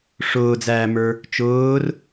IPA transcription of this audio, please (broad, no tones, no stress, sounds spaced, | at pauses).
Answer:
ʂ ʊː d͡z æː m ə˞ | t͡ʃ ʊː r